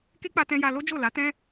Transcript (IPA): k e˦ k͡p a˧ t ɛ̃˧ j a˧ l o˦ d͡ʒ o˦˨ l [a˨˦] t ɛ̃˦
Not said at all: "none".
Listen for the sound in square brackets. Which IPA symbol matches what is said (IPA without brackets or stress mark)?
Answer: a˨˦